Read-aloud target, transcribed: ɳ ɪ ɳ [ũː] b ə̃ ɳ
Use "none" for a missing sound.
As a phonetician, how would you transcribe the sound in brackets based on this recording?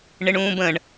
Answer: ũː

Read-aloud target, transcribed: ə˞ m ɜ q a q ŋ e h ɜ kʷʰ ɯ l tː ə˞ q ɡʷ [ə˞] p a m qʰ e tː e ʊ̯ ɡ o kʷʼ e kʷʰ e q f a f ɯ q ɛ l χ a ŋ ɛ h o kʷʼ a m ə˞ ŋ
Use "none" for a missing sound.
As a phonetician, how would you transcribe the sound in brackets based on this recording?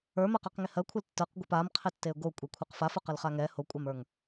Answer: ɜ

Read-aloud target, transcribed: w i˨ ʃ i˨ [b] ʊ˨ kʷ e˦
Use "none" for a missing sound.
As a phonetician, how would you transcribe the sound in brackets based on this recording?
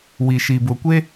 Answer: b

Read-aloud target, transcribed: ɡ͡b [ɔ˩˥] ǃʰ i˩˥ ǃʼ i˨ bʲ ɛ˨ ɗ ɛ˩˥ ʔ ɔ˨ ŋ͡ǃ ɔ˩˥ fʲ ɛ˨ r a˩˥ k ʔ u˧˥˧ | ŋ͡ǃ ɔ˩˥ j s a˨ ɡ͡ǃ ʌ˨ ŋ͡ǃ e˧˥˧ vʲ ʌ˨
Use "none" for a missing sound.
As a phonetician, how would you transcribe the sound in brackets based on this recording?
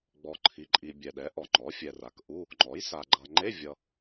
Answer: ɔ˨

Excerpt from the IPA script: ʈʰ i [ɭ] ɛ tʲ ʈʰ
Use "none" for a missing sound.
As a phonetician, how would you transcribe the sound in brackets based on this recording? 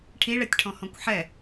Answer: ɭ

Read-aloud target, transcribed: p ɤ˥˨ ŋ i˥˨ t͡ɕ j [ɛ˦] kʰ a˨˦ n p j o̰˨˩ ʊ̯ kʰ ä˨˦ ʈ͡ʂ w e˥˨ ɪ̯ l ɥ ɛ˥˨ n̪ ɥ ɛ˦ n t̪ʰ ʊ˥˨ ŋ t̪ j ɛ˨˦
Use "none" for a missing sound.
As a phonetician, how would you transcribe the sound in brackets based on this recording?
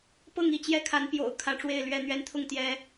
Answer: ɛ˦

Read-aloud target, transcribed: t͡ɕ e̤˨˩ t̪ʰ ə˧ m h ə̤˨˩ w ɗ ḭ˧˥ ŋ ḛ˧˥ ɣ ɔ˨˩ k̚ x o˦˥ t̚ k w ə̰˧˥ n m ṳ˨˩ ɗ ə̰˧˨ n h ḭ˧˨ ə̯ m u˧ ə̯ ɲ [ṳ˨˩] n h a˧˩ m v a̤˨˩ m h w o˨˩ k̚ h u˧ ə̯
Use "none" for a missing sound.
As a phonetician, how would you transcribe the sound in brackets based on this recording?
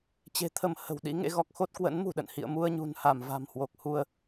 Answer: ṳ˨˩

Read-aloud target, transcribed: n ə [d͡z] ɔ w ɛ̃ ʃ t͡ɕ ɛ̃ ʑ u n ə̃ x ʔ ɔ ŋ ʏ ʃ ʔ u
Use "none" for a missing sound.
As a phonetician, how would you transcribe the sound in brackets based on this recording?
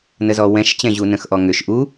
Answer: z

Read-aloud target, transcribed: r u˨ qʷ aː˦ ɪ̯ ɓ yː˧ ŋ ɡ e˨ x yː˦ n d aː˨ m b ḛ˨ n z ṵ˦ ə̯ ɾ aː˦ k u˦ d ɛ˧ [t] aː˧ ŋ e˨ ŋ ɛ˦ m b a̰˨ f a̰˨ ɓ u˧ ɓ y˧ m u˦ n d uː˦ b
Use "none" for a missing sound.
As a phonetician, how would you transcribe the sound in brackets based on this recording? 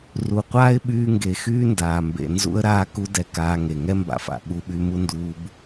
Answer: k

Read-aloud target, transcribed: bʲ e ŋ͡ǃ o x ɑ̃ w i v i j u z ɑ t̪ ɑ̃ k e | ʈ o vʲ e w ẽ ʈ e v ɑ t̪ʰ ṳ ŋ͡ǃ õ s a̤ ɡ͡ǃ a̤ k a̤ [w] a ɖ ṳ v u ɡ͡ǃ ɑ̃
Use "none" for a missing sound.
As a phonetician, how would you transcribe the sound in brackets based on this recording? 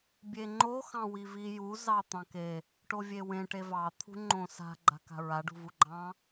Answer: ɹ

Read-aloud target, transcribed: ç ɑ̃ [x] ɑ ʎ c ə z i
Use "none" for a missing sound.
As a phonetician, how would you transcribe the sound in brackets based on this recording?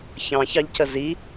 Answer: ç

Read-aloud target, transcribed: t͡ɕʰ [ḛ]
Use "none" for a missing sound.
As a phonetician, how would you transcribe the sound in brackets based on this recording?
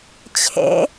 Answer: ḛ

